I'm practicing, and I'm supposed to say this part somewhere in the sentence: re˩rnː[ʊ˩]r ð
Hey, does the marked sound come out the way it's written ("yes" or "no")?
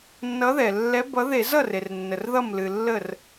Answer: no